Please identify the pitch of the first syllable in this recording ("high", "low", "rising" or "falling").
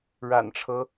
low